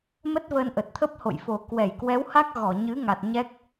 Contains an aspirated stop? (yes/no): yes